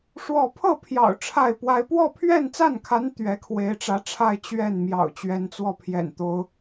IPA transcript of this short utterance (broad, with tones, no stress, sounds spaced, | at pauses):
ʂ w ɔ˥˧ pʰ ɤ˥˩ pʰ j ɑ̰˨˩ ʊ̯ ʈ͡ʂʰ a˥˩ ɪ̯ p w a˥ ɪ̯ p w ɔ˥˧ pʰ ɥ ɛ˥˧ n t͡s a˥˩ n kʰ a˧˥ n t̪ ɥ ɛ˧˥ kʰ w e˧˥ ɪ̯ ʈ͡ʂ ä˧˥ ʈ͡ʂʰ a˥˧ ɪ̯ t͡ɕ ɥ ɛ˥˩ n m j ɑ̰˨˩ ʊ̯ t͡ɕ ɥ ɛ˧˥ n t͡s w ɔ˥˩ pʰ j ɛ̰˨˩ n t̪ o˥ ʊ̯